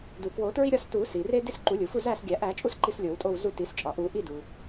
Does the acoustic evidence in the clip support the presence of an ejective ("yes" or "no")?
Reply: yes